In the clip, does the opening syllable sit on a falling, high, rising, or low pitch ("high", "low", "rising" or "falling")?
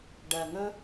low